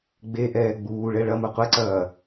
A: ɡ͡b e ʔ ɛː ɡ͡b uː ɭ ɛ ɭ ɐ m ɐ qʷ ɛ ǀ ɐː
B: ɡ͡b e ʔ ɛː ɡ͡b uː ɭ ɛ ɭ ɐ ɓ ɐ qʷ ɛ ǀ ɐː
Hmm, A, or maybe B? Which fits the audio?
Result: A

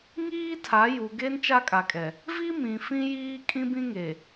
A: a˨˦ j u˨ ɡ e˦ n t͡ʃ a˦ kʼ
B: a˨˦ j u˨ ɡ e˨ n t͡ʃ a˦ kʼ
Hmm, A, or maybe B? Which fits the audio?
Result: A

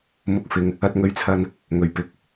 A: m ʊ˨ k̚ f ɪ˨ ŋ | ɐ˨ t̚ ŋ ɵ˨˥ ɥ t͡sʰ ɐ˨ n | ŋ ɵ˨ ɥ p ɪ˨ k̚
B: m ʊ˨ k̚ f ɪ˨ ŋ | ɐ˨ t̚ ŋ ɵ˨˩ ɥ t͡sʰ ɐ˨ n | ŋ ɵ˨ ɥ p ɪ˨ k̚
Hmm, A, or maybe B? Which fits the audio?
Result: A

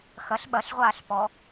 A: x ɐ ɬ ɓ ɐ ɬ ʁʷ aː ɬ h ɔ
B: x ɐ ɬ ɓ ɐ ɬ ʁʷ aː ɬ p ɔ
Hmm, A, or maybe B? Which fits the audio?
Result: B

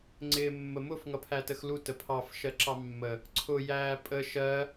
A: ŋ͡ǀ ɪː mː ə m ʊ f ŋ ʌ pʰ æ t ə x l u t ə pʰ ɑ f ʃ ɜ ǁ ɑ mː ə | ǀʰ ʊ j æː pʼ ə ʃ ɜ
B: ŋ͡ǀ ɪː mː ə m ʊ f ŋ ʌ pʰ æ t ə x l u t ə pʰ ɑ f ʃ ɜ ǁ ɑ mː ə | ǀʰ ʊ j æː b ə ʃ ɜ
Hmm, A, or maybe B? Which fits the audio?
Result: A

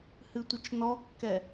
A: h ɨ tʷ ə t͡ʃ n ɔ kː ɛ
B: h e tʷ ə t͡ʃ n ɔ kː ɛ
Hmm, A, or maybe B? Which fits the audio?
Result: A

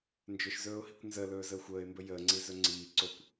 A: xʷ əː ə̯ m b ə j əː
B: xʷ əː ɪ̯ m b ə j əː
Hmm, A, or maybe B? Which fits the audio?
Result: B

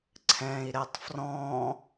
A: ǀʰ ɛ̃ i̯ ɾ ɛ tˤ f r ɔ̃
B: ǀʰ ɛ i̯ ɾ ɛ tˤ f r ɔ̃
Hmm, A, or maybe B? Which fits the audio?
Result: A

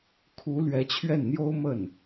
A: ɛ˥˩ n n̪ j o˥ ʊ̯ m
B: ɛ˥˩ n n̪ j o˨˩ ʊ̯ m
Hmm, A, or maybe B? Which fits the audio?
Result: A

